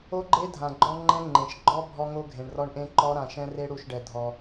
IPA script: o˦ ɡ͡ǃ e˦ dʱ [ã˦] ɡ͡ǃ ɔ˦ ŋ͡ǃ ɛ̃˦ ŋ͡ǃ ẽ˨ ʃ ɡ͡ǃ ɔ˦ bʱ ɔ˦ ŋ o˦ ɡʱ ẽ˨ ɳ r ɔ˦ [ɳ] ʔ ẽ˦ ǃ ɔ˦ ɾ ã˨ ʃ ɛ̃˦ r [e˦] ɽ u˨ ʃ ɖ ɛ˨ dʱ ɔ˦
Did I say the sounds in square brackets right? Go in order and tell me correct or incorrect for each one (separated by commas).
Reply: incorrect, correct, correct